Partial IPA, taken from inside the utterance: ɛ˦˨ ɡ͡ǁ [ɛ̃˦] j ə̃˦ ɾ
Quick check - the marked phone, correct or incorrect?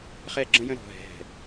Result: incorrect